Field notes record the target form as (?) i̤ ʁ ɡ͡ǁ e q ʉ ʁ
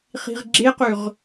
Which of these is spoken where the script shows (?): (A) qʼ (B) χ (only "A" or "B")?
B